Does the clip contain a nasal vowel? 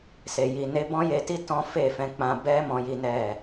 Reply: yes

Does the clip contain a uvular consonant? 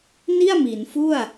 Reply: no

